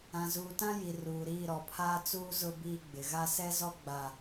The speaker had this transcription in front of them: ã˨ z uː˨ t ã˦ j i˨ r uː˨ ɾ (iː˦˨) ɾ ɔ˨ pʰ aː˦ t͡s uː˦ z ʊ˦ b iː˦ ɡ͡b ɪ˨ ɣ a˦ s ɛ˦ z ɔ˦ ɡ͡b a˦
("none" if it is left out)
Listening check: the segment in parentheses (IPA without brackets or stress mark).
iː˦˨